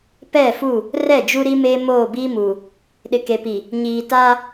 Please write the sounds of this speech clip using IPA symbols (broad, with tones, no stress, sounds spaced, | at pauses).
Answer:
p ɛ˦˨ f u˦˨ | r ɛ˦˨ d͡ʒ u˦ ɾ i˦ m eː˦ m oː˦˨ b iː˦ m uː˨ | ɗ ɪ˨ k e˨ p i˨ | ɲ iː˨ t aː˦